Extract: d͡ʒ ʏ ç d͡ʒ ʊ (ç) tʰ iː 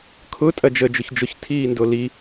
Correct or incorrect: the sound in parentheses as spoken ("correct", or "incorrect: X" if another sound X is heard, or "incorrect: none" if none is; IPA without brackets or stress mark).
correct